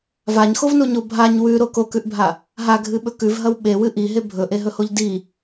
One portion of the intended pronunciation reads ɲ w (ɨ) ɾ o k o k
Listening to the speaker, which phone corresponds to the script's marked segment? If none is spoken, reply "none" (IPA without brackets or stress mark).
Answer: ʉ